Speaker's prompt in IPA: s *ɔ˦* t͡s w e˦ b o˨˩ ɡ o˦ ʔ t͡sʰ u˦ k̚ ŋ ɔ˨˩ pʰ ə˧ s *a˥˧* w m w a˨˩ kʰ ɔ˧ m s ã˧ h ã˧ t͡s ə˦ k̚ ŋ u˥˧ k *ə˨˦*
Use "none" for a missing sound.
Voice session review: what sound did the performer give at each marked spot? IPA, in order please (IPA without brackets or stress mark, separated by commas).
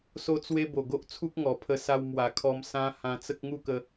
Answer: o˦, a˧, ə˧